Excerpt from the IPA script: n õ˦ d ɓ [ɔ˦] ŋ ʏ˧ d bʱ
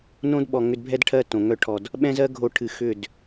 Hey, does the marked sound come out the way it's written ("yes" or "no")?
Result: no